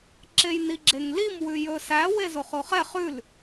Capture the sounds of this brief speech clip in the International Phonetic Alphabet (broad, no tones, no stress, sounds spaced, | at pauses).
ǁ e j n i ɡ͡ǁ e ŋ l i m w ʉ j ɵ s æ w e z o χ o χ ɛ χ ʉ l